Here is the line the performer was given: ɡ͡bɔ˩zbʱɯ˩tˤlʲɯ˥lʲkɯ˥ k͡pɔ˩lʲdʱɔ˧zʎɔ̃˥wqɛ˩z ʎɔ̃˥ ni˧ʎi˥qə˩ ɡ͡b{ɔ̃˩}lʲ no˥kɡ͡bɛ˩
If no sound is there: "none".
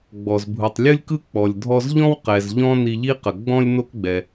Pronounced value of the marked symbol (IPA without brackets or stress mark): ɔ̃˧